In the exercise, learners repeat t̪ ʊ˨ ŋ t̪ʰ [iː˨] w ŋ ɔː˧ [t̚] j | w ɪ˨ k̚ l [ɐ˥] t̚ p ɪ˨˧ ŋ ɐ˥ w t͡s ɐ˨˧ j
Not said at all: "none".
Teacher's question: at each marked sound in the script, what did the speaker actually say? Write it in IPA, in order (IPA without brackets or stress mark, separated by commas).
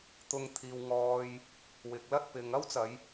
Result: iː˨, none, ɐ˥